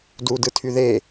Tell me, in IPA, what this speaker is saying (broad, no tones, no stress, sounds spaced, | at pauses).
d u d ɯ tʰ y ð e